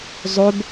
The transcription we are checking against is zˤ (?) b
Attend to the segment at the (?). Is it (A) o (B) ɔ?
A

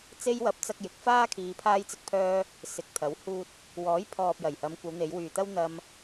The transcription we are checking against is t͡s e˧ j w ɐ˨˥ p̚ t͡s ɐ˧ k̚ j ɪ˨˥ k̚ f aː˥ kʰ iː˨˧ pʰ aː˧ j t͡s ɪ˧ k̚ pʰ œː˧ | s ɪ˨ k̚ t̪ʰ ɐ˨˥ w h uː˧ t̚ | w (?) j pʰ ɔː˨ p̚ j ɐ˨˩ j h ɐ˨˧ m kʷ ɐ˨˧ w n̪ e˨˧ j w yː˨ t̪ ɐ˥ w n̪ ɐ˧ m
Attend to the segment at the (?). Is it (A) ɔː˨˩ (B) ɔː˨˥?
B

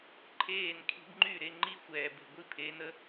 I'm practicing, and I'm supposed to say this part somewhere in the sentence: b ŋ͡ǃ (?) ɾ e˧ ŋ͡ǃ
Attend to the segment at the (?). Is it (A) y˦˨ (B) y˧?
A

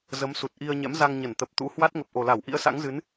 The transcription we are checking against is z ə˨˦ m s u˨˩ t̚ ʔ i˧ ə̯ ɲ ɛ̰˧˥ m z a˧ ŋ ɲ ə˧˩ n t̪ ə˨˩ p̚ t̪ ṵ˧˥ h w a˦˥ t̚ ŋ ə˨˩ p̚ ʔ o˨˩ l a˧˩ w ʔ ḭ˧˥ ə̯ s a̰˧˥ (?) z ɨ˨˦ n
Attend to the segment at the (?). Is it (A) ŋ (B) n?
A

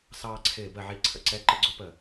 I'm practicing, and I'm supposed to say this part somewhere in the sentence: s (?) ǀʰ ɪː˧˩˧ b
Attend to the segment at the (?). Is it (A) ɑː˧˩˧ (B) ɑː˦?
B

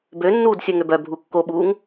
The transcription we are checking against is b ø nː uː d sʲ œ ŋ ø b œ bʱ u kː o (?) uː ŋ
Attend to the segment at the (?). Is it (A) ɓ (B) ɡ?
A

